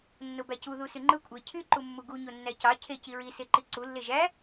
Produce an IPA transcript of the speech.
nːobæcuðu syŋ͡ǃɯ kʷʼe cʰyǃumːu ɡu ɲonːæcɑ cʰe ciɹi seǃiǀu lːeʒæ

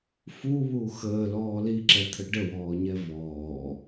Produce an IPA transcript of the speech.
fuβu xəːlɔː liǁɛt̪ʰə ɖəwɔːɲɛ vɔː

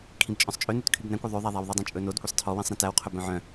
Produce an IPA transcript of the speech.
kʰĩbt͡ʃʼœ̃sˤt͡ʃʼønʉt kʰybnæ̃kʷɔ ðˤøðˤæðˤæw ðˤidˤõt͡ʃʼɵnod kʷisˤtʰɔwĩsˤ ɾẽtæwqʰɵ bœ̃ʕœ̃

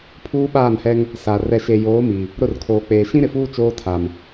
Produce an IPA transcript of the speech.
pʰuː˦ɓaː˦˨nhɛ˦ŋ | sa˨ rɛ˨ʃe˨joː˨˦ mi˨ | ɾʊ˦˨rkʰoː˨k͡peː˨ ʃĩ˦ɾɪ˨fuː˦ t͡ʃoː˦tʰa˨m

